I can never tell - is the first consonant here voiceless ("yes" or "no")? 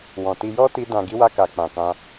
no